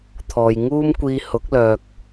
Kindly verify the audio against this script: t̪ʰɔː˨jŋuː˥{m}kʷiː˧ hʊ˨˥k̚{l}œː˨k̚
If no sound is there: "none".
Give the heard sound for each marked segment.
m, l

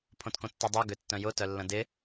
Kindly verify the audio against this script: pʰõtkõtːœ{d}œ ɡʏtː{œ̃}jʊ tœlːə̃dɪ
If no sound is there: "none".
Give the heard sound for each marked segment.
dˤ, œ̃

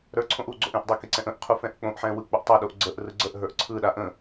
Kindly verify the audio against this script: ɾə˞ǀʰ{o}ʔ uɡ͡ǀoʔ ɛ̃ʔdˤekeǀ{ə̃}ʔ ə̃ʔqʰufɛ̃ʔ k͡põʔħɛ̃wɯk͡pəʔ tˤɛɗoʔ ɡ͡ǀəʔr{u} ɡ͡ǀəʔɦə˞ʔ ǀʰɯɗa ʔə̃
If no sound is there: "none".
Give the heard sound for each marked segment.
õ, ɛ̃, ɯ

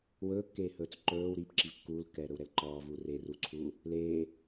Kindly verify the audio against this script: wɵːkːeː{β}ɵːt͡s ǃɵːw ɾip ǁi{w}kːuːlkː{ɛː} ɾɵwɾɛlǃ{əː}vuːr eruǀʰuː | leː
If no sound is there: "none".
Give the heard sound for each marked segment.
h, v, ɛː, ɔː

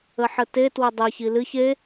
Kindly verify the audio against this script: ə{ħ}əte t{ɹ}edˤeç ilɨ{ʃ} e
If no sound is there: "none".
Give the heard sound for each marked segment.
ħ, w, ç

